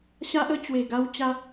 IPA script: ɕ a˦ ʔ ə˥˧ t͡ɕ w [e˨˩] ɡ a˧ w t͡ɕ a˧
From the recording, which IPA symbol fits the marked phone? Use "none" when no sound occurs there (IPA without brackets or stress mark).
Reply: e˨˩